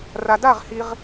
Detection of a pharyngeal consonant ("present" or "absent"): absent